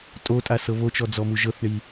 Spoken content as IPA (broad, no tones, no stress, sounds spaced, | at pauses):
tʼ o tʼ a s ɤ β o t͡ʃ ɔ d͡z ɔ m u ʒ ɤ θ ɳ i